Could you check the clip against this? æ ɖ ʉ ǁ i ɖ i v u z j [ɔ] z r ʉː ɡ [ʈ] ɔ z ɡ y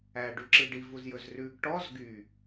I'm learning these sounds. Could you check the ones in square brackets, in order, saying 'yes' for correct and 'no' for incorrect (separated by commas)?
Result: no, yes